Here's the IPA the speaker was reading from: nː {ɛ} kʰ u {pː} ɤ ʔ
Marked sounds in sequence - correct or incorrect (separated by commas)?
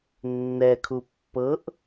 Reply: correct, correct